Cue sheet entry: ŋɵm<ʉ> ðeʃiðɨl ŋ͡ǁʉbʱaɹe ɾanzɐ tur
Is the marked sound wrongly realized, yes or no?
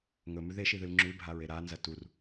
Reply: no